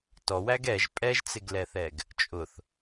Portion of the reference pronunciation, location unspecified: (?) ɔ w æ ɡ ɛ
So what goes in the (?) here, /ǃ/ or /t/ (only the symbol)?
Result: t